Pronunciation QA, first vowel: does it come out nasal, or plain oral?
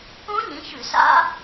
nasal